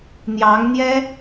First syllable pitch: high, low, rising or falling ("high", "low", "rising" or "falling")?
rising